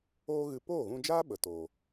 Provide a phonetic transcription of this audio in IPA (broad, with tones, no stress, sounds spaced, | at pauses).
oː˦ ɣ ɨ˧ p oː˦˨ ɣ ũ˧ d͡ʒ aː˦ ɓ ə˨ t o˨